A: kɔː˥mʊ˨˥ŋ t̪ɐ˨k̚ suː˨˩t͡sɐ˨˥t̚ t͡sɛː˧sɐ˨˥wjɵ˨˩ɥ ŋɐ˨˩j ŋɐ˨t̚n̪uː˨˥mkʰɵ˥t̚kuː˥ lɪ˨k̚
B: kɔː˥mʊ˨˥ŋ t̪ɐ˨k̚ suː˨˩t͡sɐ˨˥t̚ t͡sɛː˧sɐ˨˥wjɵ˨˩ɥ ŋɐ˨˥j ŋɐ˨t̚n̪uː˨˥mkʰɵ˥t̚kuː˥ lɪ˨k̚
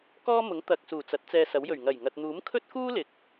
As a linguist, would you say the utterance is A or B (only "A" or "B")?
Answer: A